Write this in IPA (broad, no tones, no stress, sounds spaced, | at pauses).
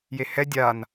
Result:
j e h ɛ dʲ a n